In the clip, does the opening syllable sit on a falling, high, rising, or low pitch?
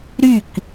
falling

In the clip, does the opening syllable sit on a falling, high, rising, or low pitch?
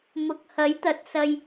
low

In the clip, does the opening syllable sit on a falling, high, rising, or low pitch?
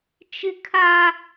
high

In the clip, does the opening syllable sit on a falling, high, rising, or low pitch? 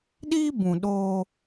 high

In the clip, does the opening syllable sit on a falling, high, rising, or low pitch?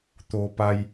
low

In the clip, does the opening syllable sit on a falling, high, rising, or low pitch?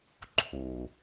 low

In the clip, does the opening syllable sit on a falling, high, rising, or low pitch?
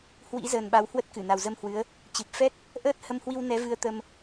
rising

